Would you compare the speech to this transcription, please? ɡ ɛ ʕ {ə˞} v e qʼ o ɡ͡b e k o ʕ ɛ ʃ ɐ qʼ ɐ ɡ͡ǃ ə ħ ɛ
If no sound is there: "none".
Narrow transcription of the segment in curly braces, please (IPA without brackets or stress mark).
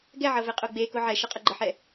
ɤ